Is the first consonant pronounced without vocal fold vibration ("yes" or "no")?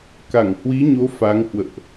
yes